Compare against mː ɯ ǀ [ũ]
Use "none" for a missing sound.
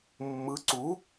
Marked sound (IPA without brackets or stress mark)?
u